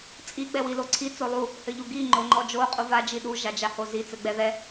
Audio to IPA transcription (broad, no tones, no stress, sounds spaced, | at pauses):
t͡sʼ i ɡ͡b ɛ w i l o ǀʰ i t͡s o lˠ u | h ɘ ʎ u ɡ i ŋ͡ǃ o ŋ͡ǃ ɔ d͡ʒ o qʼ u v a d͡ʒ i ɗ u ʒ a d͡ʒ a h o z i t͡s ɘ ɡ͡b ɛ ð ɛ